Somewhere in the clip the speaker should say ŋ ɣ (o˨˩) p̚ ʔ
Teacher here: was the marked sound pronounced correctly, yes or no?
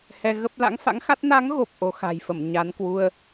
yes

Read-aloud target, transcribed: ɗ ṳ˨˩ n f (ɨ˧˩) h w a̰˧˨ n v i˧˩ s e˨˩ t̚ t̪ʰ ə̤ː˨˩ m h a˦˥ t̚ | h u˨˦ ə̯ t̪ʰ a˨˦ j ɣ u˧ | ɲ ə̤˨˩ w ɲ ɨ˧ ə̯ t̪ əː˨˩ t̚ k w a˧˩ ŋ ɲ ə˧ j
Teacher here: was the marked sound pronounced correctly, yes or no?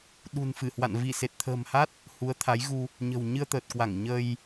yes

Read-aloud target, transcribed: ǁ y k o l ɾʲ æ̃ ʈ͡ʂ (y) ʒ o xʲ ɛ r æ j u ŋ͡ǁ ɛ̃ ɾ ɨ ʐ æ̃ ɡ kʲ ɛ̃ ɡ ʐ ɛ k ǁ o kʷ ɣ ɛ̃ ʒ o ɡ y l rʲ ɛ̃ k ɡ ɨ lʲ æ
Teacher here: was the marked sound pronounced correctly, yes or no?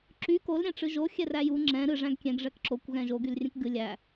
no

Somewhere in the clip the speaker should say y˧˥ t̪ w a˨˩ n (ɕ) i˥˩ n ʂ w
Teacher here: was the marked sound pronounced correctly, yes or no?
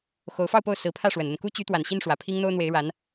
yes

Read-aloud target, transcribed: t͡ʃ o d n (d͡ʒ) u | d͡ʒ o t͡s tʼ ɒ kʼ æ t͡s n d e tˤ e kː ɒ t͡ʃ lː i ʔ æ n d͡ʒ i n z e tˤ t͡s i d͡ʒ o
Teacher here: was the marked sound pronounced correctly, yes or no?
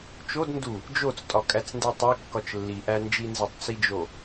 no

